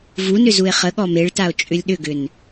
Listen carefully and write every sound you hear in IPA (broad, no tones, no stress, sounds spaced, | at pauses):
v u n ʏ z u e̯ χ ə ɠ ɔ m e ɭ t a o̯ t͡ʃʼ ʏ lʲ ɗ ʏ ɡ ʏ n